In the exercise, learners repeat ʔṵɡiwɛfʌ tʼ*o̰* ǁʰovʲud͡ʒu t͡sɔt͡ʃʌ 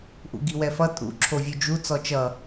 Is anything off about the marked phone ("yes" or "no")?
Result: yes